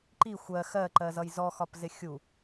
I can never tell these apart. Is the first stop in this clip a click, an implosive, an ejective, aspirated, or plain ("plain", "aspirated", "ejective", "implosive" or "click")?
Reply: click